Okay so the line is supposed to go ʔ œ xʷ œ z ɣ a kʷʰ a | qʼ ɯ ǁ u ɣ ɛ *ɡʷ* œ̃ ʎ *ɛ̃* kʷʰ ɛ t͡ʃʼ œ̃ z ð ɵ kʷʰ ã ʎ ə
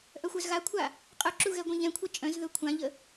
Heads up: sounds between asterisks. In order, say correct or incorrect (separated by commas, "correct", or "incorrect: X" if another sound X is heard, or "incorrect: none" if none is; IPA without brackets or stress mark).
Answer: correct, correct